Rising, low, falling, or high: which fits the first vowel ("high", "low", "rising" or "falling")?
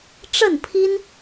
falling